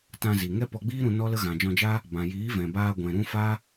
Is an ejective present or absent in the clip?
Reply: absent